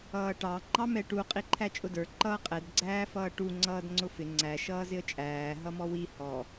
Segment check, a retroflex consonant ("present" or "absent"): present